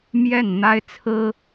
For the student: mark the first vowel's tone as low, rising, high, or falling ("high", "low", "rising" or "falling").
falling